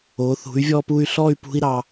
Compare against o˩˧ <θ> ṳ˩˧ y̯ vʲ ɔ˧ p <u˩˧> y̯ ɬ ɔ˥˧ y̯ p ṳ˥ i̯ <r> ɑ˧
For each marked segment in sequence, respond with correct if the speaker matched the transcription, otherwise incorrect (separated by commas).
correct, incorrect, incorrect